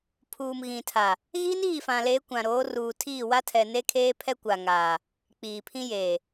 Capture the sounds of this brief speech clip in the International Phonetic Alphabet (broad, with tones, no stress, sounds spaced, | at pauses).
pʰ uː˨ m ɣ ĩ˨ tʰ a˨ | ɣ iː˦ n iː˦˨ f ã˨ l eː˨˦ kʷ ã˨ ɾ oː˨˦ r uː˨ tʰ iː˦˨ w a˦ tʰ ɛ˨ n e˦ kʰ eː˦ pʰ ɛ˦ kʷ a˨ ŋ aː˨ | k͡p iː˨ pʰ ĩ˦ j eː˨